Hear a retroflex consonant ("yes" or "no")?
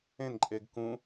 no